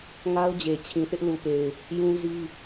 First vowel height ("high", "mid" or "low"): low